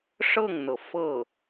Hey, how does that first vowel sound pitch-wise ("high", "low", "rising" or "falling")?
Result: falling